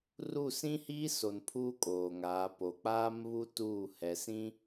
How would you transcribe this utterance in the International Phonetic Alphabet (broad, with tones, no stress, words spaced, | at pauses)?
ru˦˨ sĩ˦hiː˦ so˨npʰuː˦ kʼoː˨ŋaː˨˦ po˨k͡paː˦mβu˦ tuː˦˨ hɛ˨sĩ˦